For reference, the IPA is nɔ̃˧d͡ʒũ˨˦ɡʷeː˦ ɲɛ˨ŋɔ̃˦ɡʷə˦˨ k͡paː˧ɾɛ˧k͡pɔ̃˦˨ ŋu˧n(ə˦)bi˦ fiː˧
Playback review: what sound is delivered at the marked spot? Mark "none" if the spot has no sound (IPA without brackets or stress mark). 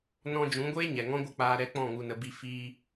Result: ə˧